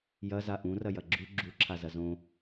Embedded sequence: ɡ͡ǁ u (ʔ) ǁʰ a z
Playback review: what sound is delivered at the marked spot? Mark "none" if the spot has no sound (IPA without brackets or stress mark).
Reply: none